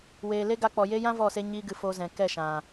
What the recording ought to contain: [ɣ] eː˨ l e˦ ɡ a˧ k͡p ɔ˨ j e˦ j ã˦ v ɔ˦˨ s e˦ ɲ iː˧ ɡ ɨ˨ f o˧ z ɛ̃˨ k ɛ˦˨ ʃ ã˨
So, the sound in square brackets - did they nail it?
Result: no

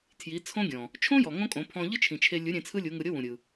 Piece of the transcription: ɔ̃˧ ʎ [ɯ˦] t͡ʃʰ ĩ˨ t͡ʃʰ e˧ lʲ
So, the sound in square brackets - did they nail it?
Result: yes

